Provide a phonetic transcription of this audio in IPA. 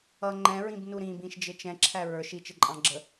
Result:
ʌ ŋ͡ǃ ɛ̃ ɹ ĩ b n u ɾ ĩ b ĩ ʃ d͡ʒ ɪ t͡ʃ ɛ̃ ǁʰ æ ɹ ə˞ ʃ i t͡ʃ ɪ ǃʼ ɑ̃ ɡ͡ǁ ə

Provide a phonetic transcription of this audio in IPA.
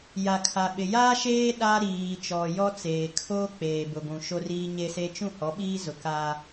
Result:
j a˨ kʰ a˨ ɓ ɪ˨ j aː˦ ʃ eː˦ ɗ a˦ ɾ iː˨ t͡ʃ ɔ˨ j ɔ˦ t͡s eː˨ kʰ o˦ k͡p eː˨ b ʊ˨ ɡʷ ũ˨ ʃ o˦ r iː˦ ɲ e˦ s e˦ t͡ʃ ũ˦˨ h ɔ˨˦ ɓ iː˦ z ʊ˨ k a˦

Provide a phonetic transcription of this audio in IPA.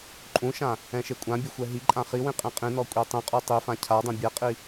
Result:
ǃʼ ũ ʃ ã | ɛ̃ ʃ e kʷʼ ã bʲ ɵ xʷ ɛ ɦ i ǃʼ ã χ i w ĩ qʼ ẽ qʼ ĩ n ɔ kʷʼ e tˤ ĩ qʼ u tˤ i f ã cʰ a dˤ ẽ bʲ ɛ qʼ i

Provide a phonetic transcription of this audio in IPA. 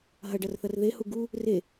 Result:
ɦ ɐ ɖ ɐ r θ ɐ r ð e h u ɡ u | r e

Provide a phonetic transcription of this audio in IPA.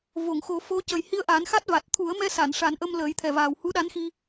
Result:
v o˨˩˨ ŋ x o˨˩˦ f o˧˥ c ə˨˩ j h i˧ ə̯ ʔ a˨˩˦ n x a˦˥ t̚ v a˨˩ t̚ t̪ʰ u˨˩˦ ə̯ m ɛ˧ s a˨˩˨ n ʂ a˨˩˦ n ʔ ə˧ m l əː˨˩˦ j t̪ʰ ɛ˨˩ v aː˨˩ w h u˧˥ ɗ a˧˥ n x i˧

